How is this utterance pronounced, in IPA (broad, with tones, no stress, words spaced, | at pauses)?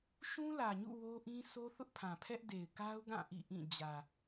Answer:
ʃũ˦lä˨ɲṵ˦˨ wo˦ʔĩ˦ sʰo˦θʊ˦ʔpʰã˨pʰɛ˦ʔ de˨ɪ̯ka˦ʊ̯ɡã˦˨ ʔḭ˦˨ʔĩ˦˨ d͡ʑä˨